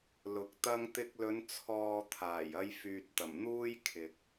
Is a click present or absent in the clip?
absent